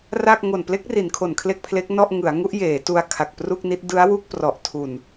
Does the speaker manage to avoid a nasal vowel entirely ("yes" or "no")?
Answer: yes